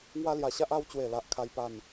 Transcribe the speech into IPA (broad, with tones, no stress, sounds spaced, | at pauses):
ŋ w a˦ l j a˧ ɕ a˦ ʔ a˧ w t͡ɕ w e˨˩ l a˨ ʔ kʰ a˦ j p a˥˧ n